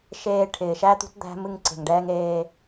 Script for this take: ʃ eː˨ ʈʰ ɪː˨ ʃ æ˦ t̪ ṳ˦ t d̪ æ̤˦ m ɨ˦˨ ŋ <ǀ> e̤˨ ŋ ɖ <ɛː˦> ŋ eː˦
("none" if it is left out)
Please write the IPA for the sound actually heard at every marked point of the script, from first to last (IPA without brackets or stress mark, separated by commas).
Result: ǀ, ɛː˦